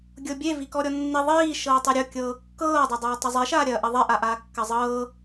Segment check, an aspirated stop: absent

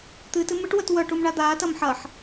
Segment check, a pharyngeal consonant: present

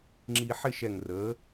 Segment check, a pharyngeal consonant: present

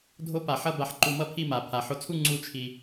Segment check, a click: present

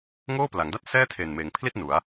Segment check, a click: absent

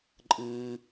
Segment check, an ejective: present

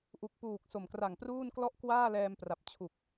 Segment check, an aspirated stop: present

